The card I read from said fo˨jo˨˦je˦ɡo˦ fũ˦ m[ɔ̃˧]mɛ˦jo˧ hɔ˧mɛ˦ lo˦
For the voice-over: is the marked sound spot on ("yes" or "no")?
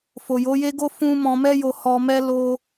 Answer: yes